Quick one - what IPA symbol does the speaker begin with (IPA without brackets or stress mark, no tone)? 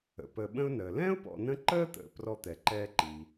ə̰